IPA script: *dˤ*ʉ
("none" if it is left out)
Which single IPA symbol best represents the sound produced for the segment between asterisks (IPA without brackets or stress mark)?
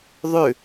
ðˤ